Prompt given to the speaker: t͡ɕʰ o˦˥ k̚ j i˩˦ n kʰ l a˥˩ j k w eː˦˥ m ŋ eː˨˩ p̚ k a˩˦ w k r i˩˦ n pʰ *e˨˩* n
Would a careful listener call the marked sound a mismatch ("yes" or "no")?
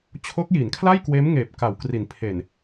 no